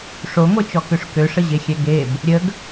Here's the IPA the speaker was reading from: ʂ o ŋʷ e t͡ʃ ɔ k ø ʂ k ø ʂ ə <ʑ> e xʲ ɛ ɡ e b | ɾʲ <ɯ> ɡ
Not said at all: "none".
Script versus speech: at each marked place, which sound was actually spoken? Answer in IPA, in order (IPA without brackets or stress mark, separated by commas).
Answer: ʑ, ə